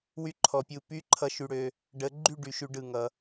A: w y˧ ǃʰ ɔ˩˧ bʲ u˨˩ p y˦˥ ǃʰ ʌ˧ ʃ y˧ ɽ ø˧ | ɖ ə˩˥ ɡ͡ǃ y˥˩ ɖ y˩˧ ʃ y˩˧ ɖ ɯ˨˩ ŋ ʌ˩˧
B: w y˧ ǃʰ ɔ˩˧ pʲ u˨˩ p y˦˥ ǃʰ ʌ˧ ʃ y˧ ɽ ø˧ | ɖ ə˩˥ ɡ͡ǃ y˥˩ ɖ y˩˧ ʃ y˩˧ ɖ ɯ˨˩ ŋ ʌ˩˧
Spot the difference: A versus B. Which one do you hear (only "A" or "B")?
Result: B